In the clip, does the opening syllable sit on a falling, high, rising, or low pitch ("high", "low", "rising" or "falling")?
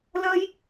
high